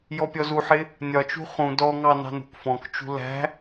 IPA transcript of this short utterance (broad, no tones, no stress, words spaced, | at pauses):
jɔpʲɔzuħɪ | nʲɒt͡ʃṳ χũ dɔŋɑ nɑ̤nṳkfɔ̃kt͡ʃṳ læ̤